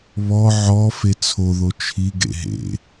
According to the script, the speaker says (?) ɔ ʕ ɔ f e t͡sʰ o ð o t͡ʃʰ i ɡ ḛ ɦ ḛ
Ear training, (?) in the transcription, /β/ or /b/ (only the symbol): β